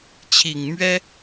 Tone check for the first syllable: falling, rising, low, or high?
low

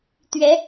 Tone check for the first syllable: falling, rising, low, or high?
rising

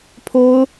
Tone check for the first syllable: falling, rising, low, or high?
high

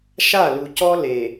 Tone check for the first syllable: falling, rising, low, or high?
falling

